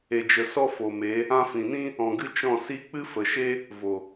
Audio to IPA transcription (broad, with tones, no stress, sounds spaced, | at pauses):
e˨ d͡ʒ ə˨ s ɔ˦ f o˨ m e˨˦ | ã˧ f ĩ˨ n ĩ˦ | ɔ̃˨ ɡ ɨ˧ t͡ʃ ɔ̃˦˨ s i˧ k͡p ɨ˦ f ə˨ ʃ e˦ | v o˨